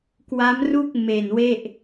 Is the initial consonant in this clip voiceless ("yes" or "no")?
yes